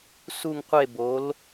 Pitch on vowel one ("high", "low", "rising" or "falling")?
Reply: falling